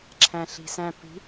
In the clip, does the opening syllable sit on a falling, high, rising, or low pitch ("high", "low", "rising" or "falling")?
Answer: low